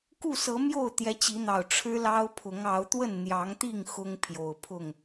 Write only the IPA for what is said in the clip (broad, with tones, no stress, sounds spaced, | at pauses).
k u˥˨ s ɤ˨˦ m j o˥˨ ʊ̯ t̪ j ɛ˨˦ t͡ɕ i˨˦ n̪ ɑ˨˩ ʊ̯ ʈ͡ʂʰ ɻ̩˦ l ɑ˦ ʊ̯ pʰ ʊ˨˦ ŋ ɑ˨˦ ʊ̯ t̪ w ə˥˨ n n̪ j ɑ˨˦ ŋ t̪ i˥˨ ŋ x ʊ˦ ŋ pʰ j o˨˩ ʊ̯ pʰ ʊ˥˨ ŋ